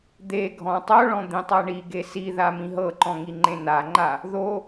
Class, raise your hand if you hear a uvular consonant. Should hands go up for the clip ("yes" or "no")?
no